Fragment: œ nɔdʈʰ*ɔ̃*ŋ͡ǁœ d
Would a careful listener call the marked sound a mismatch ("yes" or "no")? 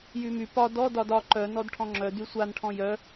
no